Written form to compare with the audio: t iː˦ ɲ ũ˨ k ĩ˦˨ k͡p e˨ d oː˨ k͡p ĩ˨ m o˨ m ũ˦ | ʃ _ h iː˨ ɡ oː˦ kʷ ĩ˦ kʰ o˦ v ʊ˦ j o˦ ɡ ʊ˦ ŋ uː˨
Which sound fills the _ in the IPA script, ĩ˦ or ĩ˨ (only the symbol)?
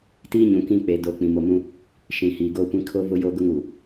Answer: ĩ˨